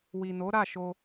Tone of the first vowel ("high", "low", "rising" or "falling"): low